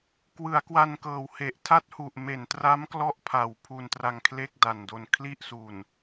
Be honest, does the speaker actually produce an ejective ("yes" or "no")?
no